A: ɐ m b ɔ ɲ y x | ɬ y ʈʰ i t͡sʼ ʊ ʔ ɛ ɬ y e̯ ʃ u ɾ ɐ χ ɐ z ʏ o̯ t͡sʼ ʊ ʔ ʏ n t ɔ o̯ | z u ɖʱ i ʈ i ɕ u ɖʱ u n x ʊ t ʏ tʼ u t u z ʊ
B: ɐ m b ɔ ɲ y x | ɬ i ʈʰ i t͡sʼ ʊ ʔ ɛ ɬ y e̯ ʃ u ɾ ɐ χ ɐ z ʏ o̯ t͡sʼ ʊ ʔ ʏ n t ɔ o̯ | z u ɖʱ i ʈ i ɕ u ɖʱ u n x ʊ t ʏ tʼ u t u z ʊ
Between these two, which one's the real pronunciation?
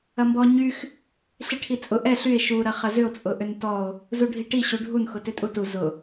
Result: B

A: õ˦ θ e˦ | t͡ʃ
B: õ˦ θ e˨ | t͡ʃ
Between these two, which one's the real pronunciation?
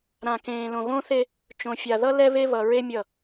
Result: A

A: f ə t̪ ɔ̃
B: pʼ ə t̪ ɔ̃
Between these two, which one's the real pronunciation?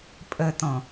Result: B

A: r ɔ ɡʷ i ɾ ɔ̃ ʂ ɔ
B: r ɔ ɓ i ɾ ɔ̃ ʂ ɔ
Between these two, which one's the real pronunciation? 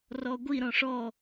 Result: A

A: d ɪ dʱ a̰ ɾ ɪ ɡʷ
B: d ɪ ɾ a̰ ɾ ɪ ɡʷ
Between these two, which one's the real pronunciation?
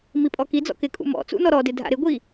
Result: A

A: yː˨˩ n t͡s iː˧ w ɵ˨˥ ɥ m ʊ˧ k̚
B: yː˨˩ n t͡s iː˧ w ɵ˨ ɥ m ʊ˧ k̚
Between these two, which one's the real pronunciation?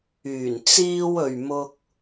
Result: B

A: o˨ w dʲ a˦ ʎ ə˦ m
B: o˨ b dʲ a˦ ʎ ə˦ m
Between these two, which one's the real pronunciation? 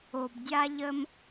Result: B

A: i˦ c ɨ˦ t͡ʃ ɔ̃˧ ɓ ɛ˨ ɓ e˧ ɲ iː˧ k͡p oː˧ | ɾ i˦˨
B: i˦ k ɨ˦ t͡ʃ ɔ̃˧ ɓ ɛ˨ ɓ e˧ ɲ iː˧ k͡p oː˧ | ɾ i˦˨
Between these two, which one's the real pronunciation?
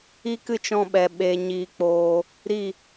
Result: B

